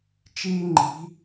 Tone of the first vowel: high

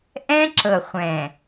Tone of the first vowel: high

